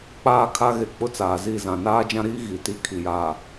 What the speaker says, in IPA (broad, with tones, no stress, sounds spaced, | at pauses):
k͡p aː˦ kʰ a˦ ɣ e˨ k͡p ʊ˦ t͡s aː˨ z i˦˨ z ã˨ n aː˦ d͡ʒ ã˦ ɾ iː˦ ɣ i˨ t i˦˨ kʰ i˨ j aː˨